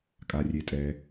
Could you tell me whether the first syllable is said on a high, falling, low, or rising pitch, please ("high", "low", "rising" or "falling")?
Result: low